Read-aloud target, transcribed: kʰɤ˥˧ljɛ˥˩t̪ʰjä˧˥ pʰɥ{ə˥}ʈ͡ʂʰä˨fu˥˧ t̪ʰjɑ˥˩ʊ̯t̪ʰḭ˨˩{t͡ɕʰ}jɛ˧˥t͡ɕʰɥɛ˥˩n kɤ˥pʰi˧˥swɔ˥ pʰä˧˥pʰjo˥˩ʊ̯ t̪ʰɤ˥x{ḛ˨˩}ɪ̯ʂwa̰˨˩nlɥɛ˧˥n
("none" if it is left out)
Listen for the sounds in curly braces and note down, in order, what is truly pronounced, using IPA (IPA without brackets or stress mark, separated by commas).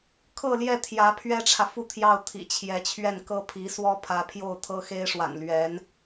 ɛ˥, t͡ɕʰ, e˥